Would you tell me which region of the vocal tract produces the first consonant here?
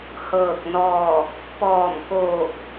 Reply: throat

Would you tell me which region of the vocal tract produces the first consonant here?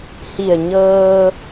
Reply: throat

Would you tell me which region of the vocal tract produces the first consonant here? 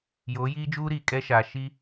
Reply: palate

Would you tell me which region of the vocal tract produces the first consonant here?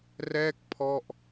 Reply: tongue tip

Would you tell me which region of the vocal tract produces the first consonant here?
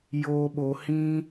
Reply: palate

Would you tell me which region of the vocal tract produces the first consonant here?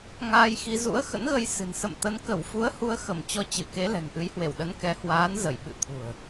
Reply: velum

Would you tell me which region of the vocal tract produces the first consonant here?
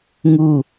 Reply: velum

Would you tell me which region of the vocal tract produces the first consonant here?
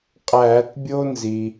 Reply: uvula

